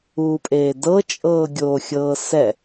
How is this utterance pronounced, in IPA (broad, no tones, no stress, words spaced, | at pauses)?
uːpʼeːdɤ t͡ʃʼɤːɡʲoːxʲɤːsɛ